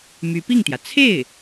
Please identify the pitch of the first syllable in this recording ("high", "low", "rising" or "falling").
rising